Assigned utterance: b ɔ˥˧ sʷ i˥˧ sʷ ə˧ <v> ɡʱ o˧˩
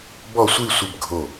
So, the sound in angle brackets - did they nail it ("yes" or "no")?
no